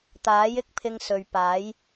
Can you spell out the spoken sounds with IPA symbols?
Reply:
t̪ aː˨˥ j ɪ˥ k̚ pʰ ɪ˧ ŋ s ɵ˨ ɥ p aː˨˥ j

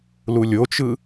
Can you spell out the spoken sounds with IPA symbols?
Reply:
l u lʲ o t͡ʃ ɯ

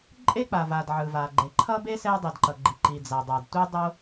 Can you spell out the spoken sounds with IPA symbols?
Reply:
ǃʼ e˥ k͡p a˩ v a˩ d ʕ ɯ˩ v a˩ ɡ͡ǃ e˩ ǃʰ ʌ˥ b e˥ s ɛ˥ dˤ i˩ d ǃ ʌ˩ ɡ͡ǃ i˩ ǃ i˩ d͡z a˩ dˤ a˩ d tʷ i˥ dˤ o˥

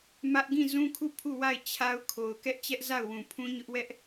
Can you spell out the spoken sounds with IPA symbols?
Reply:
m ä˦ ʔ ɡ ĩ˦˨ z ũ˦ kʰ u˦˨ pʰ u˦˨ w a˦˨ ɪ̯ t͡ɕʰ a˦ ʊ̯ kʰ o˨ ʊ̯ k ɛ˦ ʔ t͡ɕ ɛ˦ ʔ z a˦˨ ʊ̯ w ũ˨ pʰ ũ˦ ɲ ʊ˦ ʔ w ɛ˦ ʔ

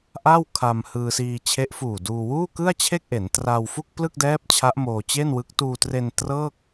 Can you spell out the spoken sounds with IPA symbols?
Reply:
ʔ a˥˩ w kʰ a˧ m h ɯː˧ s iː˧ t͡ɕʰ e˦˥ ʔ f uː˨˩ d uː˧ w uː˥˩ k ɯ˥˩ a̯ t͡ɕʰ e˥˩ k̚ ʔ e˩˦ n t r a˧ w f u˥˩ k̚ p l ɯ˥˩ k̚ d ɛː˦˥ p̚ t͡ɕʰ a˦˥ ʔ m oː˧ t͡ɕ e˥˩ n w ɯ˦˥ k̚ t uː˧ t r e˧ n t r ɤː˥˩ k̚

